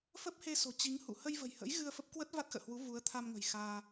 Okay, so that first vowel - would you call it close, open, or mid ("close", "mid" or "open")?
mid